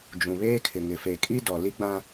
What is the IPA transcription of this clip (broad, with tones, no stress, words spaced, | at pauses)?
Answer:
d͡ʒũ˨βeː˦kʰɪ˨ ŋɪ˨fe˨ kʼi˦ dɔ˨li˦ɡ͡bã˦